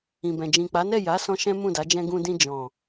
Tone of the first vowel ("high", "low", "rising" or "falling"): low